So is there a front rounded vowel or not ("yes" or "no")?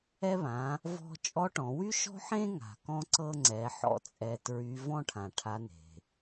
yes